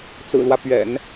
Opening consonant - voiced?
no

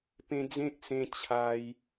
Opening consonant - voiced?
no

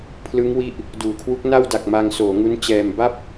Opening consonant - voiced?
no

